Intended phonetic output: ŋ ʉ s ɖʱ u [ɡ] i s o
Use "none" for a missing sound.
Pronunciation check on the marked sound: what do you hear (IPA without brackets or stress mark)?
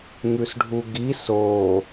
ɡ